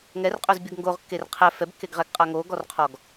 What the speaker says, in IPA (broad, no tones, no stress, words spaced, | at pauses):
ŋɛrqʼɵzbʲəɡ ŋɡoʁkːer qʰɛ fɛbkːeɡʁɛɡqʼa ŋoɡɔrqʰɔɡ